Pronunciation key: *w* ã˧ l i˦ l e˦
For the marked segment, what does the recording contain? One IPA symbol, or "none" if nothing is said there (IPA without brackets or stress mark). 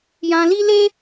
j